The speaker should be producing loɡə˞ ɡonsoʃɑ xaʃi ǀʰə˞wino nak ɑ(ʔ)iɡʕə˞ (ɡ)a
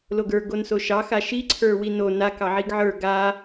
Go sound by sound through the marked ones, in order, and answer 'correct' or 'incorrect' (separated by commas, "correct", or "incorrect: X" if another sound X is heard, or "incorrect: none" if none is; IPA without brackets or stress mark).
incorrect: ʕ, correct